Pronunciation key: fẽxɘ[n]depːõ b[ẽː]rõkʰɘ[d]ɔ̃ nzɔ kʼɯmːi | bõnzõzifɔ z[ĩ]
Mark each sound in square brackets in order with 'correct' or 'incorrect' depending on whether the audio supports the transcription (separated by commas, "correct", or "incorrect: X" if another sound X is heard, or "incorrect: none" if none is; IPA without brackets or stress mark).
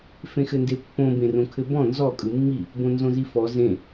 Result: correct, incorrect: ẽ, incorrect: b, incorrect: ẽ